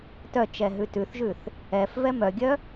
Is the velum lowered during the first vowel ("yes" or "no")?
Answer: no